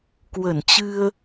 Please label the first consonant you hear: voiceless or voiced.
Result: voiceless